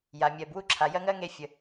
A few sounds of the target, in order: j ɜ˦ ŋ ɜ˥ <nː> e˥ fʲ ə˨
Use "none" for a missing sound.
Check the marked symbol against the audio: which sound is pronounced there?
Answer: ŋ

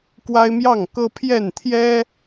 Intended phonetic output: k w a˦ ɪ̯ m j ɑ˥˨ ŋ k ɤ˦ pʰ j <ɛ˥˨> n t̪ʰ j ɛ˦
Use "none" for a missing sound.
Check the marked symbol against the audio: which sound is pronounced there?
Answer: ɛ˥˨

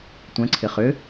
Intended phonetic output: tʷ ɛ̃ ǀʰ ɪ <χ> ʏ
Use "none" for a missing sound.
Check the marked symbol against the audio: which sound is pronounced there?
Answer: χ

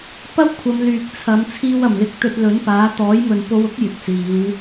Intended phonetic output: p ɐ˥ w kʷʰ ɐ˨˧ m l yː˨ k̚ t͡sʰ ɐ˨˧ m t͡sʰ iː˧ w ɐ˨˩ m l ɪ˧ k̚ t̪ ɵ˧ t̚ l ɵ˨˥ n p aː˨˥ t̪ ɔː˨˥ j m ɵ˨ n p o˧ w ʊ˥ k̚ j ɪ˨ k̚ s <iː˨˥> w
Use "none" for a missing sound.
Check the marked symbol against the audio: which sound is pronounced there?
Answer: iː˨˧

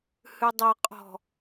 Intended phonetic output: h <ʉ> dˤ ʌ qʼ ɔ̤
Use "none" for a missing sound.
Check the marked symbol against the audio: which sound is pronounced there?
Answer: ʉ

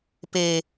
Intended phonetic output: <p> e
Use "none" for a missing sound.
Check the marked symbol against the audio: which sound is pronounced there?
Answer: p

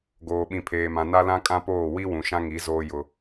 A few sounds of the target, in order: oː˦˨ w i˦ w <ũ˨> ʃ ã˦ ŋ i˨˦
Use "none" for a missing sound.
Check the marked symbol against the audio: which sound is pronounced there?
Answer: ũ˨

